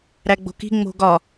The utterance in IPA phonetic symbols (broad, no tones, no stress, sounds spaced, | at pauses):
ɾ æ ɡ͡b o̤ k i̤ ŋ͡m o̤ ɡ ɒ